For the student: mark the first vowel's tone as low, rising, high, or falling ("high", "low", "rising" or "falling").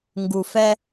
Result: low